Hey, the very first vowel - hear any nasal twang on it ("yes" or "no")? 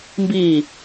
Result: no